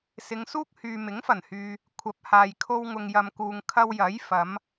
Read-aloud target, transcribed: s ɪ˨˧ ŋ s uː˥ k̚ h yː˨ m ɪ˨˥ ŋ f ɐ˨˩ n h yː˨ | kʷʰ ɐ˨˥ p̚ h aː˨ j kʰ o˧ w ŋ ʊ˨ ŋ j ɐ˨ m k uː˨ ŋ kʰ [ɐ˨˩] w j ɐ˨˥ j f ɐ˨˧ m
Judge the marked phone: incorrect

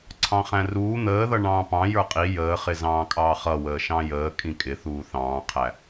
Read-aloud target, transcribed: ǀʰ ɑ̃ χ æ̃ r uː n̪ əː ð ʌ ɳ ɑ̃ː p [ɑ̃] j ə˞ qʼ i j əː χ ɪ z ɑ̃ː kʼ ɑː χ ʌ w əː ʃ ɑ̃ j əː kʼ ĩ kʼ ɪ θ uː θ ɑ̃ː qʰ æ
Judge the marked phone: correct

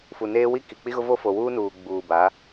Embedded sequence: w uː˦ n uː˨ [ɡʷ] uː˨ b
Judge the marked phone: incorrect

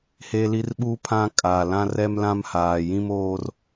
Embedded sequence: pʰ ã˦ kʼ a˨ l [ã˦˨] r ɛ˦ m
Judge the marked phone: incorrect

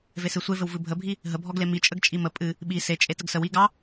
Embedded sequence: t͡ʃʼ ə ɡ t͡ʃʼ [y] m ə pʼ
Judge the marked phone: incorrect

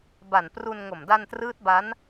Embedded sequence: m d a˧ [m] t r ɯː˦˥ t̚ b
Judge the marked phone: incorrect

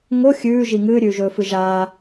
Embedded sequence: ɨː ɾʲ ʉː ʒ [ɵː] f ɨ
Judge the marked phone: correct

